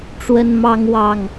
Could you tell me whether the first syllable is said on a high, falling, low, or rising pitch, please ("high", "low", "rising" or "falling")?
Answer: high